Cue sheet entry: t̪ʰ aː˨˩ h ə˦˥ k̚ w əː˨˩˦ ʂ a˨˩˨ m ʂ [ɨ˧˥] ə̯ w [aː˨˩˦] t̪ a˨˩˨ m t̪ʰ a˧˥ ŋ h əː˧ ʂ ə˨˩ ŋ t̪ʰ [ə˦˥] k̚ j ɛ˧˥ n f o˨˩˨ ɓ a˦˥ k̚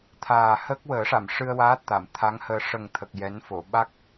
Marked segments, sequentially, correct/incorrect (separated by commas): incorrect, incorrect, incorrect